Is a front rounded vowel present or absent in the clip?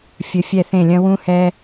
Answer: absent